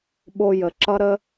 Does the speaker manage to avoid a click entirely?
no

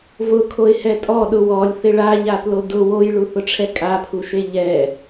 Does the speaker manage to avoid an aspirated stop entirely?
no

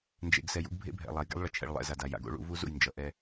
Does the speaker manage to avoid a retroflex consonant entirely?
no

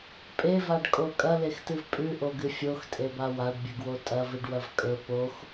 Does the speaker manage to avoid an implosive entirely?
yes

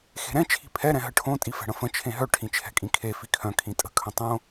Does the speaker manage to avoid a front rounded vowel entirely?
no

